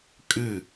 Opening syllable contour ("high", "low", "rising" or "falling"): falling